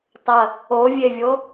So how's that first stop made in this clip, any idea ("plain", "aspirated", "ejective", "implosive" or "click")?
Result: plain